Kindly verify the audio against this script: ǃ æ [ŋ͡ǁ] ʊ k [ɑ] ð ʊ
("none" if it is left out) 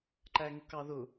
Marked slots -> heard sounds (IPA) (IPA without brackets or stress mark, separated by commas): ŋ, ɑ